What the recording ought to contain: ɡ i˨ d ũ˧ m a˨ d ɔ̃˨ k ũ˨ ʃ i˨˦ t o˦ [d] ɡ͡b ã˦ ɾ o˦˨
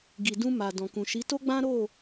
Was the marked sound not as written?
yes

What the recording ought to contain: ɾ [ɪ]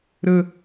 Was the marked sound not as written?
yes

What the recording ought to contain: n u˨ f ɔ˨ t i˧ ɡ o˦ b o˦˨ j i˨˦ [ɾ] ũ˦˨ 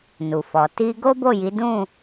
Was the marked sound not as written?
yes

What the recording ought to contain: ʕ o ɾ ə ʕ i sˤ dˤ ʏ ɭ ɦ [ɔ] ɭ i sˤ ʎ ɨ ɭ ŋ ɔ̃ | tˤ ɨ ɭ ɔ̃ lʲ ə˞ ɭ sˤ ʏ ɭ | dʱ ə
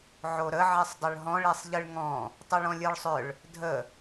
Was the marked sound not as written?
yes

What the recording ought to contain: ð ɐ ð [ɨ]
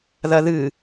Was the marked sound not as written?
no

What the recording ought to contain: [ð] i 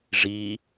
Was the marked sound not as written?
yes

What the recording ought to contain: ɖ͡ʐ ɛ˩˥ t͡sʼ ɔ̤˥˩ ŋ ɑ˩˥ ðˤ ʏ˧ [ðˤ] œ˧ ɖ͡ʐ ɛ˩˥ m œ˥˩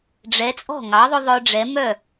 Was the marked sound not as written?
no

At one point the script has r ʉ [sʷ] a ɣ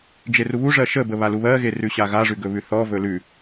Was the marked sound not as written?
yes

